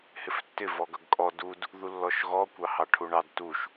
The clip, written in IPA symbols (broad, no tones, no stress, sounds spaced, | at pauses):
h ɪ f tː ɪ v ɔ ɡ ʌ ɡ kʼ ɔ d u d | ð u lː ɔ ʃ ɣ ɔ kʷ ɑ h ɑ ʈʰ u ɳ ɑ d t u ʃ